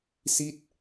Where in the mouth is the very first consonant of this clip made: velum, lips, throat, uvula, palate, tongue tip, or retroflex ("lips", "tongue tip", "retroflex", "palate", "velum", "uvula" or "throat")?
tongue tip